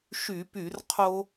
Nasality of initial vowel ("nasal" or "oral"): oral